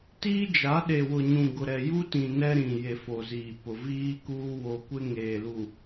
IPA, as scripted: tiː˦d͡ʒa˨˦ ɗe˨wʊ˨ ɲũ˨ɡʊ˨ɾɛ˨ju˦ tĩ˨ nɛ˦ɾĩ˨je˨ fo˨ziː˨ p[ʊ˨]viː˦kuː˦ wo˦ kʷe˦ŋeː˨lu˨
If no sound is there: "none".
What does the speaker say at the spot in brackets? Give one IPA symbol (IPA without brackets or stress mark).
ʊ˨